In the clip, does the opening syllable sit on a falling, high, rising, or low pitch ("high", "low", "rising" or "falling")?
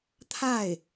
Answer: falling